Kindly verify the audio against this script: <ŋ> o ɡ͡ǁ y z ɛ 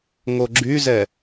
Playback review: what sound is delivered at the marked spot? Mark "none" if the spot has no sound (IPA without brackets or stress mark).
ŋ